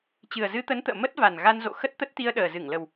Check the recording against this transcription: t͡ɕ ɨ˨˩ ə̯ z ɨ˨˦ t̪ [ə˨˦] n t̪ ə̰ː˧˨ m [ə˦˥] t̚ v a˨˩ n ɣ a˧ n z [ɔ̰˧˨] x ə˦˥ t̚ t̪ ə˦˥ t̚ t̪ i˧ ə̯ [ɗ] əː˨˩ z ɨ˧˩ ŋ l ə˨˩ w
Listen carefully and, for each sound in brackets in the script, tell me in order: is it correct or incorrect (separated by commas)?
correct, correct, incorrect, correct